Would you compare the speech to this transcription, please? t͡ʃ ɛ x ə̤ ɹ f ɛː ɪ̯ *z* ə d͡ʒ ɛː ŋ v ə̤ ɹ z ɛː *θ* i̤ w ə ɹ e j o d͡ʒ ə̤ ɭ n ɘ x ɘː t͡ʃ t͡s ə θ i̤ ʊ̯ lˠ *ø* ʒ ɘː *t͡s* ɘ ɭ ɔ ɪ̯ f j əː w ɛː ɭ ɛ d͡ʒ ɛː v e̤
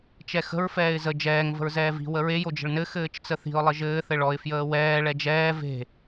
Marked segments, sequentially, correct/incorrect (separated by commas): correct, incorrect, incorrect, incorrect